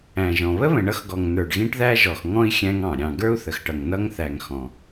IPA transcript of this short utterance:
æ̃˨ ʒ ɔ̃˨ β ə˥ β ə̃˨ ɳ ʌ˦ x ɡ ɔ˨ ŋ n ə˞˨ ɖ ɣ ĩ˥ ʈ ð æ˥ ʒ ɔ˨ x ŋ ɔ̃˥ i̯ xʲ æ̃˦ ŋ ɑ̃˩ ɾʲ ɑ̃˨ ɡ ə˞˥ u̯ θ ə˨ x ʈ ʌ˨ ŋ n ʌ˦ ŋ θ æ˨ ŋ x ɔ̃˩

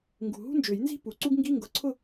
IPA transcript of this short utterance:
ŋ ɡ ṳ˨˩ ɦ ṳ˥ n d͡ʒ ø˨˩˦ j n z i̤˥˧ p u˨˩ ǀ u˥ ɡ ŋ ɡ i˧˥˧ ŋ ɡ ʊ˨˩˦ ǀʰ ʊ˥˧

